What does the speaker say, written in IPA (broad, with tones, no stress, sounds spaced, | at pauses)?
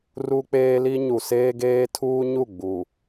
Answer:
r u˦ k͡p eː˦ l i˦ ɲ u˨ s eː˦ ɡ eː˦ tʰ uː˦ ɲ u˦˨ ɡ͡b u˨